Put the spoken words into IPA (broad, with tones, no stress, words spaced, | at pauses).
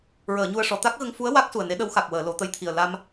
ɹəː˨˩˨ɲu˧ə̯ʂɔ˨˩˨ t̪a˦˥k̚ɣə˧ŋfu˧˥ə̯ wa˦˥k̚ su˨˩ə̯ne˧˥ ɗə˧˥wxa˨˩k̚wəː˨˩˨ lo˨˩˦t̪ə˧˥jt̪ʰi˨˩ə̯ la˧m